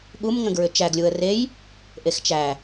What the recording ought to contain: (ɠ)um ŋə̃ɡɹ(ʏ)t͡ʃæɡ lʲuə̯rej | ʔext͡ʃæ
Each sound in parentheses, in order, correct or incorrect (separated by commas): correct, correct